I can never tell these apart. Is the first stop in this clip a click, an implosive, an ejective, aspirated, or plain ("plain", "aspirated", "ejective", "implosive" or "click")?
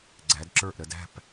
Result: click